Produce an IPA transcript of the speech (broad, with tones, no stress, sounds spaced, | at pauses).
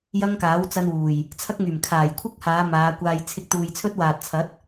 j ɐ˥ ŋ k aː˨˥ w t͡s ɐ˥ n w uː˨˩ j | t͡sʰ ɐ˥ k̚ ŋ yː˨˩ m kʰ aː˨˩ j kʷʰ ɪ˥ k̚ h aː˨˧ m aː˨˧ kʷ aː˧ j t͡sʰ ɪ˧ k̚ t̪ uː˨ j t͡sʰ ɵ˥ t̚ w aː˨ t̚ t͡sʰ ɐ˨˥ t̚